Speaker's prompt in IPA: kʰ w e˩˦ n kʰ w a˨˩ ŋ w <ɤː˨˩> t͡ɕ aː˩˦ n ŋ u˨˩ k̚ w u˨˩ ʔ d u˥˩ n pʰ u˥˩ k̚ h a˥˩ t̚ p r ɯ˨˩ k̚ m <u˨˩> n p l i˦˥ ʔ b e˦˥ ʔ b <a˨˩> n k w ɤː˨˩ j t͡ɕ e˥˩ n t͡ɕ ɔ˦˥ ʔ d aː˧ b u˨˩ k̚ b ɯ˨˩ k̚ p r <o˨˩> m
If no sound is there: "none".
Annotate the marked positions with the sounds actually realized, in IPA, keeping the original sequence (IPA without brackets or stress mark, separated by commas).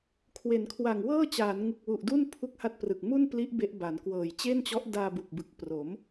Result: ɤː˥˩, u˥˩, a˩˦, o˩˦